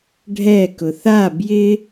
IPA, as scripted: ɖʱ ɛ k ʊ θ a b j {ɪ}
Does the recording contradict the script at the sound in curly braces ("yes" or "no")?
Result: no